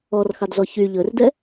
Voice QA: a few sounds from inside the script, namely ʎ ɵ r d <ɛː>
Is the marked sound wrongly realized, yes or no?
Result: yes